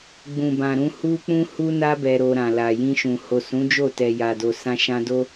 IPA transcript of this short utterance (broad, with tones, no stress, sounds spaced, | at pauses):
ɡ͡b ũ˨ b ã˨ ɾ ũ˧ h u˦ k͡p ũ˦ h u˦ n a˦ b ɛ˧ ɾ o˧ ɾ ã˨ l a˨ j ĩ˧ ʃ ũ˨ h o˨ s ũ˨˦ d͡ʒ o˦˨ t ɛ˨ j a˨ d o˨ s ã˧ ʃ ã˧ d o˦